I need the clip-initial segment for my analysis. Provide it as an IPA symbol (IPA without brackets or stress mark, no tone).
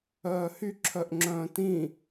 œː